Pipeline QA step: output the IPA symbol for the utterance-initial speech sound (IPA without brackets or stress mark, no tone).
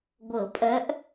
ɡʷ